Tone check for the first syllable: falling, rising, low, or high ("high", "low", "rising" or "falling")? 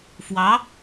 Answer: rising